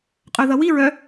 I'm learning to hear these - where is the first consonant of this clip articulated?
uvula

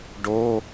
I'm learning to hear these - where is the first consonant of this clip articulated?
retroflex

